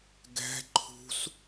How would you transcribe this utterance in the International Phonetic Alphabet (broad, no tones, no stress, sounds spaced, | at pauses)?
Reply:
ɡ ɛ̤ ǃʰ ṳ s